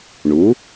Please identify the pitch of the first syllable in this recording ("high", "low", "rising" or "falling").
rising